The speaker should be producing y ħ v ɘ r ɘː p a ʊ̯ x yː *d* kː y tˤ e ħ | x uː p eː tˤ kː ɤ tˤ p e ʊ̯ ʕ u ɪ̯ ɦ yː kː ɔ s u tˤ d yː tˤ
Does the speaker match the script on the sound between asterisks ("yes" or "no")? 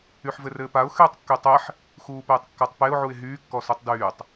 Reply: no